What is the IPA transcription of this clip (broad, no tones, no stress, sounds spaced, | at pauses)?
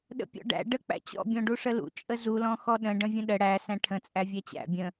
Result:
ɗ ə̰ pʲ ɔ̰ ɖ æ̰ ɖ ə k͡p æ̰ t͡ɕ ɔ̰ bʲ ɔ̃ ɖ u ʂ ə l ṵ t͡ʃʼ ə z u l ɔ̃ x ɔ ɗ ə̃ ɖ ə̃ vʲ ə̃ ɗ ə ɽ æ s æ̃ ʈʰ ə̃ t͡sʼ æ vʲ æ t͡ɕ æ̰ bʲ ə̃